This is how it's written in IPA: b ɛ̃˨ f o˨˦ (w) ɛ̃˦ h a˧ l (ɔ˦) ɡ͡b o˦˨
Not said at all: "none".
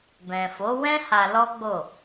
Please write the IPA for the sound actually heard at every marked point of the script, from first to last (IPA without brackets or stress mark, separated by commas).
w, ɔ˦